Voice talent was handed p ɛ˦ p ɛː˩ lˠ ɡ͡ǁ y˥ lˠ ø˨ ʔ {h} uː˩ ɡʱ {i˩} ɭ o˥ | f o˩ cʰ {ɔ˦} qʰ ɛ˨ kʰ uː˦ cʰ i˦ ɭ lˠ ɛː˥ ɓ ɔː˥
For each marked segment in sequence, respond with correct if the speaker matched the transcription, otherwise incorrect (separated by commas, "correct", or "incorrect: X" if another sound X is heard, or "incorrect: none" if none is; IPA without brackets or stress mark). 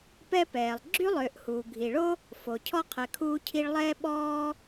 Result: correct, correct, correct